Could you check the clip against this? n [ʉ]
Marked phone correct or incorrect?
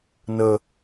incorrect